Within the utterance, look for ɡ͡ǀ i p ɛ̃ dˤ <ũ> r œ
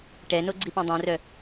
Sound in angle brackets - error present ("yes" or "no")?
yes